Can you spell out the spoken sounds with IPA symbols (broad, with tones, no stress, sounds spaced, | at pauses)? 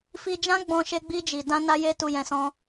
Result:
f i˧ d͡ʒ ã˦ ɡ͡b ɔ̃˧ ʃ e˧ ɡ͡b i˧ d͡ʒ i˨ d ã˧ n a˧ j e˧ t u˧ j ɛ̃˧ s ɔ̃˦